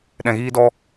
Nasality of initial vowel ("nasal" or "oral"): nasal